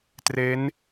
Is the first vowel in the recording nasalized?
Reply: no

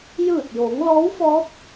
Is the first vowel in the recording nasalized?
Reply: no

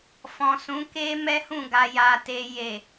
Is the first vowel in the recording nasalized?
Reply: yes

